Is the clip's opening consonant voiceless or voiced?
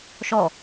voiceless